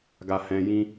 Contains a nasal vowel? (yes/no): yes